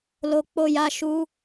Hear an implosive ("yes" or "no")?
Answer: no